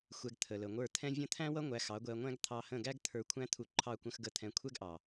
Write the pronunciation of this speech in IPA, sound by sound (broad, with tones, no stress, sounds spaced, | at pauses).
xʷ ɛ˧ ɡ t̪ʰ ə˨ l ə˨ ŋʷ ə˞˦˨ t̪ʰ ɛ̃˦ vʲ ə̃˦ t̪ʰ æ̃˦ w ʌ˦ ŋʷ æ˧ x ɑ˨˦ ɡʷ ɛ˧ ɐ̯ ŋʷ æ̃˦ ɡ t̪ʰ ɑ˧ h ə̃˦˨ ɡ æ˦ ɡ t̪ʰ ə˞˧ kʷʰ æ̃˦ t̪ʰ u˧ ǃʰ ɑ˦˨ kʷ ə̃˧ x ɡ ə˧ t̪ʰ ɛ̃˧ kʷʰ ɛ˦ ɡ ʔ ɑ˨